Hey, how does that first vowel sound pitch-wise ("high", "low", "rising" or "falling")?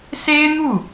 high